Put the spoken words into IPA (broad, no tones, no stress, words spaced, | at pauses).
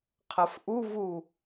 qʰɐfʔuvu